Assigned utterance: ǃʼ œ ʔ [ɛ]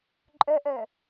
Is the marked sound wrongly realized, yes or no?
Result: yes